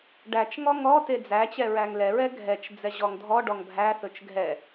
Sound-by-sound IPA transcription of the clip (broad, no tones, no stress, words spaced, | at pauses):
ɖæt͡ʃ ŋɔŋɔ ted͡zæt͡ɕɛ ɹæŋlɛɹɛ ɡʱɛt͡ʃ d͡zɛʑɔŋdʱɔ ɖɔŋbʱæθɵt͡ʃ ɡʱɛ